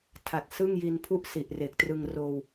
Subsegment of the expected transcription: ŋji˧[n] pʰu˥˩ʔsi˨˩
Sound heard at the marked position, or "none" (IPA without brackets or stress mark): n